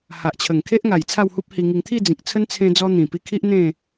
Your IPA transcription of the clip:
h a˨ ʔ t͡ɕʰ ə˨˩ ŋ kʰ e˦ ʔ ŋ a˨˩ j t͡sʰ a˥˧ w h u˦ p̚ h i˧ ŋ i˧ ŋ t̪ʰ i˥˧ d͡z ĩ˨ k̚ t͡sʰ ə˦ n t͡sʰ ẽ˧ d͡z ɔ˧ n̪ ĩ˨˩ p i˧ kʰ i˦ ʔ n̪ ẽ˥˧

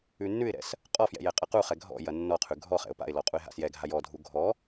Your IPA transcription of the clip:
ʉ nː ʉ ɪ̯ ɾ ɛ̰ s | qʼ ɔ f j ɛ̰ j ɛ qʼ ɐ q u χ ɛ ɡʱ ɔ̰ j ɐ nː ɔ qʰ ʉ ɡʱ ɔ χ ɛ̰ ʊ̯ p a̰ ɪ̯ l ɔ qʼ u ɪ̯ ɦ a̰ s j ɛ ɡʱ a j ɔ dʱ u ɡʱ ɔ

